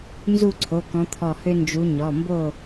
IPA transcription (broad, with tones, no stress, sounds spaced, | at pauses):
n z u˥˨ ǀʰ o˩˧˩ k ɔ̃˨˦ t̪ʰ ɔ˧˩ h ø˦ n d͡ʒ u˨˦ ɲ ɔ˩˧˩ m b o˥˨